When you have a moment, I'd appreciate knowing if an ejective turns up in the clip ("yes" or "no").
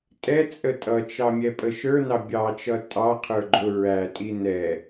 yes